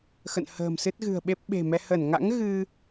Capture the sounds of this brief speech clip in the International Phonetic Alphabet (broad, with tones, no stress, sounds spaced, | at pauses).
x ə̰˧˨ n h ə̤ː˨˩ m s ɨ˦˥ t̚ ɣ ɨ̤˨˩ ə̯ ɓ e˦˥ p̚ ɓ e̤˨˩ m ɛ˧ h ə˧˩ n ŋ a̰˧˥ ŋ ɣ ɨ˧